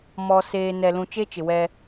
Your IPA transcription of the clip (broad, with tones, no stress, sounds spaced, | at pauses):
m ɔ˨ s eː˨ n ɛ˨ l ũ˨ t͡ʃ e˦ t͡ʃ ɪ˨ w ɛ˦